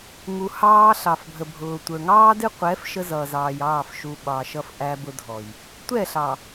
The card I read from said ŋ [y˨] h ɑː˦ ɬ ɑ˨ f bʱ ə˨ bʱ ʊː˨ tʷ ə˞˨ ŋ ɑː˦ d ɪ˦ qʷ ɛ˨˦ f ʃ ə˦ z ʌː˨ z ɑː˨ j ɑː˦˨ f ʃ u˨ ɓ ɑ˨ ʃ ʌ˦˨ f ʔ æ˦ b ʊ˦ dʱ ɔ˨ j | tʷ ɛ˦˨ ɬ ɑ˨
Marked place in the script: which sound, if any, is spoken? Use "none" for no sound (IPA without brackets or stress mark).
u˨